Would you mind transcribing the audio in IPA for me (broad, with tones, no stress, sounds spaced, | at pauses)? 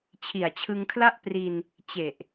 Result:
t͡ɕʰ i˨˩ a̯ t͡ɕʰ ɯ˧ ŋ kʰ l a˥˩ ʔ p r i˧ n | t͡ɕ e˨˩ ʔ